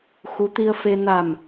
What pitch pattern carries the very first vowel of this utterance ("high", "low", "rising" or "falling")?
rising